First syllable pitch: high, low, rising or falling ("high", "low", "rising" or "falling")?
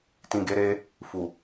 low